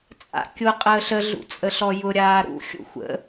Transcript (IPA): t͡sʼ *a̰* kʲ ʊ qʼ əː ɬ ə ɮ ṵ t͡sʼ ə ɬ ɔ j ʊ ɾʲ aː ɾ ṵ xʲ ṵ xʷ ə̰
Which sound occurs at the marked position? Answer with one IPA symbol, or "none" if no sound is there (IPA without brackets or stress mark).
a̰